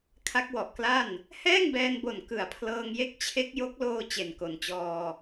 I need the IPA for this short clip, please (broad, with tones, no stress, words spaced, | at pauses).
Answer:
kʰa˦˥k̚wɔ˨˩ʔkla˥˩n | hɛː˥˩ŋbɛː˧nbo˨˩n kɯ˨˩a̯pʰlɤː˧ŋje˥˩k̚ t͡ɕʰe˦˥k̚jo˦˥k̚loː˧ t͡ɕe˨˩nko˨˩nt͡ɕɔː˧